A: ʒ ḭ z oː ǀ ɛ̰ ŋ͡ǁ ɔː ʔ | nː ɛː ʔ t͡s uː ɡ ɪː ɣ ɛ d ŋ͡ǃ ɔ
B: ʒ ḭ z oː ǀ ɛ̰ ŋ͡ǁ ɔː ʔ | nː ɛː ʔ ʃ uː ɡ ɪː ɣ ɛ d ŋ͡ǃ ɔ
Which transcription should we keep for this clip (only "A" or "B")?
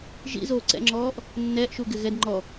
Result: B